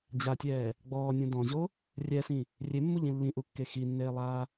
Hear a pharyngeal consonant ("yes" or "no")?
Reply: no